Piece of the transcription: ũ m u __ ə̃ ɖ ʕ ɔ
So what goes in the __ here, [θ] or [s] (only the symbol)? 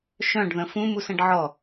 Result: s